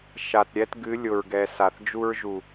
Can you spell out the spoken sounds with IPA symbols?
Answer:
ʃ a˨ t ɾʲ ɛ˦ t ɡ ɨ˨˦ lʲ ʊ˨ ɹ ɡ ɛ˨ s a˨ θ d͡ʒ u˦ ɹ ʒ u˨

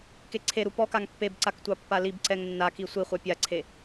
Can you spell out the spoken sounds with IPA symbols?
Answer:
k e ǀʰ e ɾ u p ɔ k a ŋ pː e b ǀ a k tʷ ɑ pː a l i b ǀ ɛ ŋ nː a k i sʷ i χʷ a pʲ a ǀʰ e

